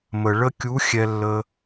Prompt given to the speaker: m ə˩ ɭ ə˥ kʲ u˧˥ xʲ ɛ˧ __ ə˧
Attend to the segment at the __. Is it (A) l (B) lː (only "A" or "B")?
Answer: B